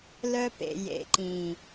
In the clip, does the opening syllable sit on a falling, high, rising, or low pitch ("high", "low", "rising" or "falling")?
high